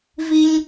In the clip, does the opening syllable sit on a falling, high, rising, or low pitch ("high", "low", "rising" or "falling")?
high